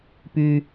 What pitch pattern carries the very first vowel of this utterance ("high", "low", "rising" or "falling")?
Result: low